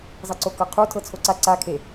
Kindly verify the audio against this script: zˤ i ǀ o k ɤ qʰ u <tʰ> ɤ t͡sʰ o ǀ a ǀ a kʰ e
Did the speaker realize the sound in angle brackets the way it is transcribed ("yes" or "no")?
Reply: yes